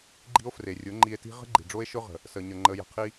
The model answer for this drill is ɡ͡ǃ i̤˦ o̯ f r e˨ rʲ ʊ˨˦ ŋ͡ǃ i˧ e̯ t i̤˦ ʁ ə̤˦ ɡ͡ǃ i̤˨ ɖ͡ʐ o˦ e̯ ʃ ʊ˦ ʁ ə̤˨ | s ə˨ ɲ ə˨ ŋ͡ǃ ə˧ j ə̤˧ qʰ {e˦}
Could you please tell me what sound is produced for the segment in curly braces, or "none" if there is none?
i˦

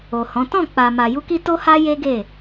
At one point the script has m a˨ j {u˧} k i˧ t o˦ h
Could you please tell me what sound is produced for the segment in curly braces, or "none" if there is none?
u˧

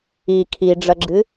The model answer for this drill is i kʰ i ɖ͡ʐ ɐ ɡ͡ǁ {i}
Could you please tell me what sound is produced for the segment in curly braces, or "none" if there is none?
ɨ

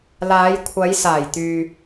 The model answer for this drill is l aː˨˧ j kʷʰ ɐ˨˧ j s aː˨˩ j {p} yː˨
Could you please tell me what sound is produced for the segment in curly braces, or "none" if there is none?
t̪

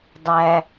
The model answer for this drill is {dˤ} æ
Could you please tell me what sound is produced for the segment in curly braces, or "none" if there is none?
dˤ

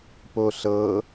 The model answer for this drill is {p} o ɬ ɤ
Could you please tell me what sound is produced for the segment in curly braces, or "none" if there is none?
p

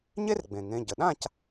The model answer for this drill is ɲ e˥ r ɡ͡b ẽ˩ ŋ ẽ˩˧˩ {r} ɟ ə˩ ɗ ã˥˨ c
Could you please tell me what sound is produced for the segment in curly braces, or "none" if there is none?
none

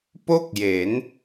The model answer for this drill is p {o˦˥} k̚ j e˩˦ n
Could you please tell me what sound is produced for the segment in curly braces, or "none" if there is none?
o˥˩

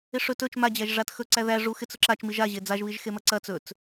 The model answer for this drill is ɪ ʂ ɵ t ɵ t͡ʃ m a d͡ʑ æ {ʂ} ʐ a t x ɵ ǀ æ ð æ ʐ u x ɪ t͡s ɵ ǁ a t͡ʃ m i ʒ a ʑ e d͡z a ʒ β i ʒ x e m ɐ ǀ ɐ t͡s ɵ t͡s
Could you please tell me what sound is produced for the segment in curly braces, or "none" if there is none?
ʒ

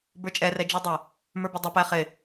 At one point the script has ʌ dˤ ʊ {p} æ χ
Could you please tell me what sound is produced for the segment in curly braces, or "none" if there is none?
p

